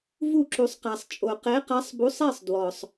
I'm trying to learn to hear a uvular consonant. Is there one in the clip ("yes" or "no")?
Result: yes